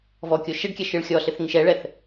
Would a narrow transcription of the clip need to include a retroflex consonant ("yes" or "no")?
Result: yes